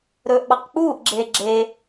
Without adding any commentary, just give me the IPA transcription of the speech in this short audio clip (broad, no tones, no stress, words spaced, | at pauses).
ɾɵːʔɓɑqk͡puːʔɡ͡ǁeː ɡ͡ǁe